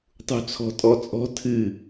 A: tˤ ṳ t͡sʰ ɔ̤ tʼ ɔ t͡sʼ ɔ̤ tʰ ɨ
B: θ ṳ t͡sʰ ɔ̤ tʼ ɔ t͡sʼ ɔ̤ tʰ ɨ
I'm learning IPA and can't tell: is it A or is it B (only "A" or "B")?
A